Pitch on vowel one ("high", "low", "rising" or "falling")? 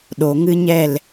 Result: low